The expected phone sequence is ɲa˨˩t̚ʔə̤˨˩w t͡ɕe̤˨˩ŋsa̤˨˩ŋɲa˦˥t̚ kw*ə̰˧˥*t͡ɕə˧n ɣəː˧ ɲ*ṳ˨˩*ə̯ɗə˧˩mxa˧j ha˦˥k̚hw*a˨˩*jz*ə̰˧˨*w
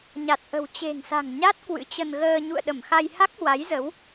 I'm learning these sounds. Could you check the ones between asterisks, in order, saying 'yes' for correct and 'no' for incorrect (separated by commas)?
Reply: no, no, no, no